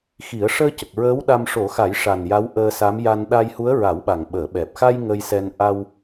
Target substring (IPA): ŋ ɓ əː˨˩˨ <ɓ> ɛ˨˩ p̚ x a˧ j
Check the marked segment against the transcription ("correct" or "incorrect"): correct